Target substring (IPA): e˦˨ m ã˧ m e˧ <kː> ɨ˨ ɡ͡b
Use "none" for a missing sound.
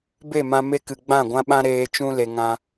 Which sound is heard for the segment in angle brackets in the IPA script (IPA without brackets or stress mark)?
k